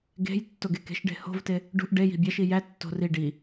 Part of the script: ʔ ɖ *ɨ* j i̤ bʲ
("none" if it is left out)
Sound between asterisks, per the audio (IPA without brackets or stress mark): e